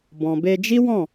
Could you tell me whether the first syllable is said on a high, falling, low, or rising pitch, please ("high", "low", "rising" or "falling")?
low